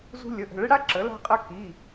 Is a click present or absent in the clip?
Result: present